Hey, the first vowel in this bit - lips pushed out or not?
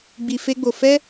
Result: no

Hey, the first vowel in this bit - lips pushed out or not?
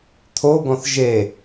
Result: yes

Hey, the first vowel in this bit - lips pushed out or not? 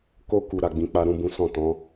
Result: yes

